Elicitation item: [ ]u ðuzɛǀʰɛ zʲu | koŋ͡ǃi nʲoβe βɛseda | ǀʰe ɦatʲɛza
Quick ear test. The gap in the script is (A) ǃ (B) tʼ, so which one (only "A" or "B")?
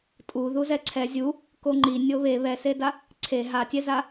B